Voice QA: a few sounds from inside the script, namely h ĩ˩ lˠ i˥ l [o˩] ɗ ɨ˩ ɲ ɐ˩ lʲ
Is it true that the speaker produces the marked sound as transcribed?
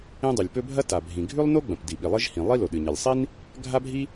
yes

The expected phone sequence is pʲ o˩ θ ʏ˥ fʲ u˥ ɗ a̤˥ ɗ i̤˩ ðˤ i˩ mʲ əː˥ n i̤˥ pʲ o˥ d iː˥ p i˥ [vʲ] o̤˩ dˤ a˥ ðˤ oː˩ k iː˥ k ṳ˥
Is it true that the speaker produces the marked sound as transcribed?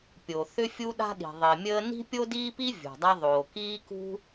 yes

